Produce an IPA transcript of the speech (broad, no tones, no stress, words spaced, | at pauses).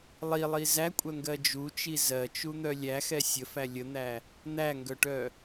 lˠilˠi zækʷʼœŋɡɜ d͡ʒut͡ʃi zɜt͡ʃun̪œ lʲæxɛ sʲəfæ lʲən̪æ | n̪æŋɡœʈœ